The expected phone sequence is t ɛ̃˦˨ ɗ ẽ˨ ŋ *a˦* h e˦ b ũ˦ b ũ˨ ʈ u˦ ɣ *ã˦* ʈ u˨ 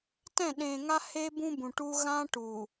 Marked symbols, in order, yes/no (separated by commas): yes, yes